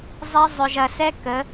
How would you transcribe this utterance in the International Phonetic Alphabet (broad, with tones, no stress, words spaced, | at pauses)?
zˤe˦ zˤʏ˨ʒɐ˨sɛ˦ kə˨˦